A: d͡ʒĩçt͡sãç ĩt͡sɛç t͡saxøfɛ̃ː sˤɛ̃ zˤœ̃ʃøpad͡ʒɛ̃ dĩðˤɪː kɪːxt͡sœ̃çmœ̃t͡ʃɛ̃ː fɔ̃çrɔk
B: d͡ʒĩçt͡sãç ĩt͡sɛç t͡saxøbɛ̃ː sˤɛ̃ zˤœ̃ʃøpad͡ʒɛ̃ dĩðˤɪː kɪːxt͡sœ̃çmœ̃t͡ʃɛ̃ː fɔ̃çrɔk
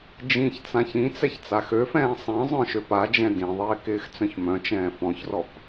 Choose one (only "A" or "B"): A